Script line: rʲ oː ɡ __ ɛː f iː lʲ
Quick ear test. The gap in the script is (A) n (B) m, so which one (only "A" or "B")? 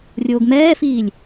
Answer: B